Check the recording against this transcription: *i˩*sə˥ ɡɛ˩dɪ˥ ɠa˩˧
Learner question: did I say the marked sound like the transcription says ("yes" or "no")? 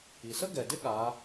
yes